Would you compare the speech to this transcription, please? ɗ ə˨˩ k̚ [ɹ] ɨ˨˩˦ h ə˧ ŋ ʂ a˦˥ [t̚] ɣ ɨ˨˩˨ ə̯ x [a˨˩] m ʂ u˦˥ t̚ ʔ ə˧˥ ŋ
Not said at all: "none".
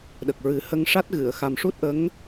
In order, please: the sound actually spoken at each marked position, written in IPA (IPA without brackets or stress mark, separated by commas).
ɹ, t̚, a˨˩